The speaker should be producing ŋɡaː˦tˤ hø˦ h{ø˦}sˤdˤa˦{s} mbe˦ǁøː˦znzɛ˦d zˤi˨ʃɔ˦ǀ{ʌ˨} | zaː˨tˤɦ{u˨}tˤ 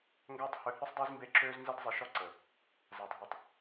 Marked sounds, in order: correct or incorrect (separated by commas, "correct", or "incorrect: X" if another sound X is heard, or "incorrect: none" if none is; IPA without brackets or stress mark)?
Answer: correct, incorrect: z, incorrect: ə˨, correct